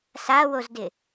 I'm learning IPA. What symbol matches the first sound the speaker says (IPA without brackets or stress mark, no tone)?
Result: s